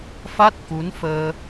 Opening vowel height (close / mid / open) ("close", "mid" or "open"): open